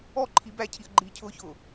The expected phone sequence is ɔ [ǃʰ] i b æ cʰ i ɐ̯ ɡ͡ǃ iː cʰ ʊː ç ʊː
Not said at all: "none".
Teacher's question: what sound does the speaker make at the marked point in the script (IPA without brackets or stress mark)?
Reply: ǃʰ